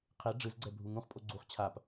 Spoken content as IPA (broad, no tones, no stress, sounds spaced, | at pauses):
qʰ e ɖ͡ʐ ɯ z ɡ͡ǀ ɛ bʱ u ŋ ũ χ pʼ o ɡ͡ǀ u χ t͡ɕʰ a p